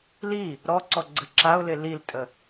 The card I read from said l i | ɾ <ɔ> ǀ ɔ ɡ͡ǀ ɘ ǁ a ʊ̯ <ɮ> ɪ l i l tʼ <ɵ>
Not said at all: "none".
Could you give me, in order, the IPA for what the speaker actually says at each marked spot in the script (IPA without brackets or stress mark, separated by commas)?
ɔ, l, ə